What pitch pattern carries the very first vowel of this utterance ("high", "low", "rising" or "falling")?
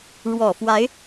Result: low